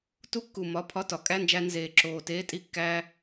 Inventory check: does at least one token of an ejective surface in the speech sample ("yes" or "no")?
yes